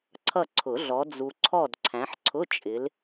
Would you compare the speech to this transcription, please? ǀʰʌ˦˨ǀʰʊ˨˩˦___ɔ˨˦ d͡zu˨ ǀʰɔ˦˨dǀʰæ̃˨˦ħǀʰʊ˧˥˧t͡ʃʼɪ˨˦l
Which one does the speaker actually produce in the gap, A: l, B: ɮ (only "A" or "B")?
B